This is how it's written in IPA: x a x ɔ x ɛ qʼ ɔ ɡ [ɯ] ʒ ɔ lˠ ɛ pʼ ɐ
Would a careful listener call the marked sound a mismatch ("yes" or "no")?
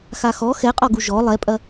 yes